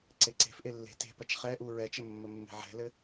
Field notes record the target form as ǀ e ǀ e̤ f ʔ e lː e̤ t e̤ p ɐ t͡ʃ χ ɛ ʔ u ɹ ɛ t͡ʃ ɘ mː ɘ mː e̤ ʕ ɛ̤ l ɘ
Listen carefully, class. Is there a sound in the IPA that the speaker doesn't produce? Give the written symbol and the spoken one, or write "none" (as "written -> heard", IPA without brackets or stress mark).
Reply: none